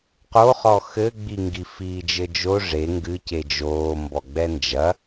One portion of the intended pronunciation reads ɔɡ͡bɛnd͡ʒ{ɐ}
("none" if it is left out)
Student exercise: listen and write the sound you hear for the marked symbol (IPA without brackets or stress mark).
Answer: ɐ